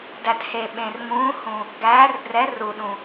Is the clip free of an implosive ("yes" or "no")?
no